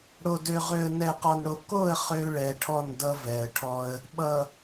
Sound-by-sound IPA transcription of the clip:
ɽo˨dø˨ ʁø˨ə̯nɛ˨qɔ˨nɽo˨ ko˦˨ə̯ χø˦ɭɛ˨ʈʰɔ˦˨ndʌ˦ vɛ˨ə̯ʈʰɔ˦ə̯ | ɓʌ˨

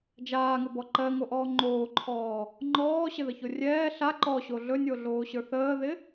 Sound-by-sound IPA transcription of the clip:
d͡ʒaːŋɪbɔ ǃɜŋoʔɔː ŋ͡ǃoːǃʰɔː | ŋ͡ǃɔːɕɪðəço rʲɛː ɬa ǃɔɕo ɮɵnʲoɮoːɕə˞ θəːðɪ

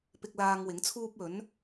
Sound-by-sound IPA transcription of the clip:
pɪ˧k̚laː˧ŋ wɪ˨˥ŋt͡sʰuː˥p̚ ɵ˨˥n

